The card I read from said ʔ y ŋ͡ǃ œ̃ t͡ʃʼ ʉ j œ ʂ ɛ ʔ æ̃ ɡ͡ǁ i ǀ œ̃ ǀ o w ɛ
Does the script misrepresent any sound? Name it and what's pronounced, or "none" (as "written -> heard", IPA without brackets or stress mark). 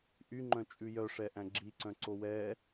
none